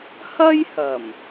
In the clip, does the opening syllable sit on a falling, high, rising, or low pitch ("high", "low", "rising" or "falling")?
high